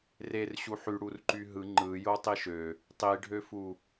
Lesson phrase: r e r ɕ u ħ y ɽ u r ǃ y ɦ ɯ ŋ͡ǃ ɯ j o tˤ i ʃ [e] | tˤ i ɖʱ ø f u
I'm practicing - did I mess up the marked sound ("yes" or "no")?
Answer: yes